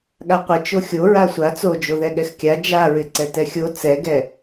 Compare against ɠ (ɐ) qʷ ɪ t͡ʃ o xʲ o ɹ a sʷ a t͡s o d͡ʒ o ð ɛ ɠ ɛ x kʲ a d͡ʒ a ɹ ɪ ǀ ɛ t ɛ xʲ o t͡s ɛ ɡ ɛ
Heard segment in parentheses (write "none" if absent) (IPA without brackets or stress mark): a